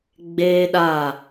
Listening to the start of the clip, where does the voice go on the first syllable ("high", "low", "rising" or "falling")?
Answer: high